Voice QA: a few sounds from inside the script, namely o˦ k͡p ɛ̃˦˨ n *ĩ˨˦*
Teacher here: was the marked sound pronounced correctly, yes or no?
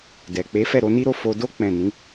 yes